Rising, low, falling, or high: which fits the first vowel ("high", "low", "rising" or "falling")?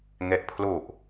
low